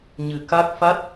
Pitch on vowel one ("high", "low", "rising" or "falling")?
low